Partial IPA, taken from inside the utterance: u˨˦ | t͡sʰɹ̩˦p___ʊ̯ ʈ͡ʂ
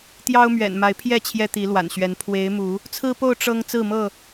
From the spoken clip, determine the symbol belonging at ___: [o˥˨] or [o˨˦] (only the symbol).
o˥˨